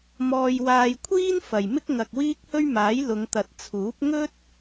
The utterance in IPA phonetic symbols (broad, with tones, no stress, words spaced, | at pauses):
mɔː˧jwaː˧jkʷʰiː˥n fɐ˨jmɪ˥k̚ ŋɐ˨k̚wiː˥k̚hɵ˥ɥmaː˨˥j lʊ˨˧ŋt̪ɐ˨t̚t͡sʰuː˨˥p̚ ŋɵ˥t̚